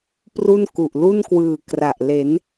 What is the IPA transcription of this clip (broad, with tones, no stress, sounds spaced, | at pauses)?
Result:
p r u˥˩ n k u˨˩ ʔ l u˥˩ n k w ɯː˨˩ k r a˨˩ ʔ l e˩˦ n